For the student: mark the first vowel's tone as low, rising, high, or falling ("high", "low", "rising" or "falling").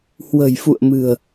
low